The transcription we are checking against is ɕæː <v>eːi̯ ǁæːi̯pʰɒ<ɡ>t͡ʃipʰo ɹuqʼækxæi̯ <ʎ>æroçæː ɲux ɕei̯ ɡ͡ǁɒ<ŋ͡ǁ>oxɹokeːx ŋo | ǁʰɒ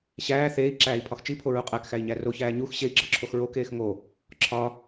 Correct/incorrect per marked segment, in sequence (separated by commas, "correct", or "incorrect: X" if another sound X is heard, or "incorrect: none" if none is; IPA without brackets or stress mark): incorrect: θ, incorrect: x, incorrect: ɲ, incorrect: ǁʰ